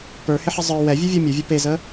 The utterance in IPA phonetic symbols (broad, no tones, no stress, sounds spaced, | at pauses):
p ə˞ h ɪ ħ ɪ zˤ ə˞ w ɛ vʲ ɘ vʲ ɔ mʲ u vʲ ʌ p e z ə